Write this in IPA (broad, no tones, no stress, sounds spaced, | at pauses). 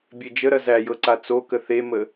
bʲ e d͡ʒ ə ɾ ɐ z æ j ɤ ǀ a t͡s o k ə θ e m ə